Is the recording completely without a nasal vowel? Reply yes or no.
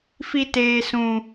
no